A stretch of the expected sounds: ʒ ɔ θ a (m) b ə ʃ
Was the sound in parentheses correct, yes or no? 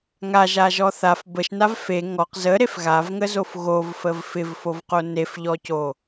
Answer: no